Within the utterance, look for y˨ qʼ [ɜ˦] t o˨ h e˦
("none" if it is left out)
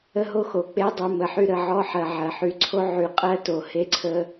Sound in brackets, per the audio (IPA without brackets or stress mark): ɜ˦